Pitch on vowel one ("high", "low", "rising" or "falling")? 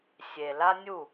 low